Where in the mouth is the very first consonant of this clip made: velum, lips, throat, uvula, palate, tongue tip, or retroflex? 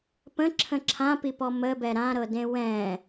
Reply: lips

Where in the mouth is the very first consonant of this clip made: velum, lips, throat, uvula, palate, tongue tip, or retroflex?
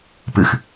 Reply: lips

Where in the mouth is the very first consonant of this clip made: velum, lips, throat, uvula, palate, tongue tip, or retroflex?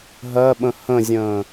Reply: throat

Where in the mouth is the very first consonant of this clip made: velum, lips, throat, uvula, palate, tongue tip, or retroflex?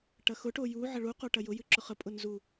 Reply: retroflex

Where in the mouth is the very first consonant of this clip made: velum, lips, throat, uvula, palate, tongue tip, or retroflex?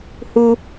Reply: throat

